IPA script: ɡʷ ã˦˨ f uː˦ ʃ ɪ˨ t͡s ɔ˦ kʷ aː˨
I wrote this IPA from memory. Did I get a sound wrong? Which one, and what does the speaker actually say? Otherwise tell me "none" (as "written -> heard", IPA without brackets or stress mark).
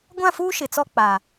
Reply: kʷ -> k͡p